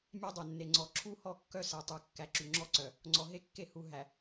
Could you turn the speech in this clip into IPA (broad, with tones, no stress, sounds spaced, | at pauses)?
mʲ æ˦ dˤ œ˨ nː e˨ ŋ͡ǀ ɔ˨ ǁʰ u˦ h ɔ˦˨ kː œ˦ s ɛ˨ tˤ u˨ kː æ˨ ǁ y˨ ŋ͡ǁ ɔ˦ ǀ œ˨ | ŋ͡ǀ ɔ˨ ɦ e˦ kː e˦˨ h u˨ ɦ æ˨